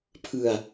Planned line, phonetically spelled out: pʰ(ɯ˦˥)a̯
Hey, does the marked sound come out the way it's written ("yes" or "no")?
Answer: no